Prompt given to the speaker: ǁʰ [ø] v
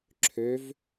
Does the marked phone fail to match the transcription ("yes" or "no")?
no